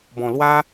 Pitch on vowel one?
low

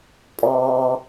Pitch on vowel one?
low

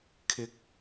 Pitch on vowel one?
high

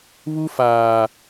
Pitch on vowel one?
high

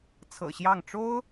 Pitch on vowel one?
low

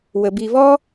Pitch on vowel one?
low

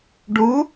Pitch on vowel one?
rising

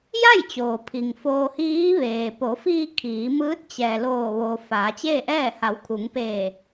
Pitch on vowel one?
falling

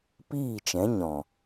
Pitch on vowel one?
falling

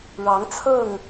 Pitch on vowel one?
rising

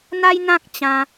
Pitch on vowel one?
high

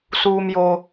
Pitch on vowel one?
low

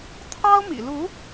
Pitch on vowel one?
high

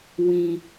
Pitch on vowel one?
low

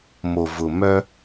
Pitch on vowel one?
low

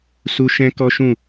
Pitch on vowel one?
high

